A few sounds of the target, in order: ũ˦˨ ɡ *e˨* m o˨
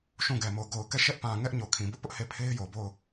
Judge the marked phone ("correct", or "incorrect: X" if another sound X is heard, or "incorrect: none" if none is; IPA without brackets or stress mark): incorrect: ɛ˨